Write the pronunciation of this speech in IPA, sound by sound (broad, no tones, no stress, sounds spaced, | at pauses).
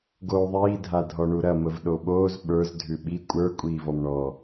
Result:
ɡ oː ðˤ iː dʱ a dʱ ɔ ɳ u ɾ ɐ m ə v ɗ o ɓ oː z ɓ ə˞ z dʱ ʉ ɓ i kʷʼ ə˞ kʷʼ iː v ɔ m ɳ ɔ